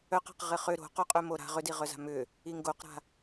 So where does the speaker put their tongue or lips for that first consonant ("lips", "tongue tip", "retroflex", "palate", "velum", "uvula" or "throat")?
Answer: uvula